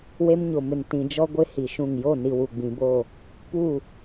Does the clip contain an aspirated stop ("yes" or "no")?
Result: no